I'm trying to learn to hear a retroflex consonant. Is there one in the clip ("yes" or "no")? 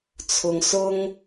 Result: no